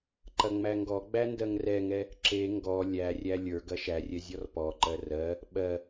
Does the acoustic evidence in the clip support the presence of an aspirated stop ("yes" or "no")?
no